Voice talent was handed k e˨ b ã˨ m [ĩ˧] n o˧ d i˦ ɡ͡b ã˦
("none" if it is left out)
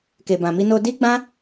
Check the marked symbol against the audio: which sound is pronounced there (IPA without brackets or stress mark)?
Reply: i˧